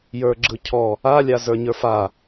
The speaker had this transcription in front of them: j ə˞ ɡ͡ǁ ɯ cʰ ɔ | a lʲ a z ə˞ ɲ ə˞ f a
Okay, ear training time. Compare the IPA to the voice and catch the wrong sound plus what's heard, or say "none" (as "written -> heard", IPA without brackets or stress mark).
none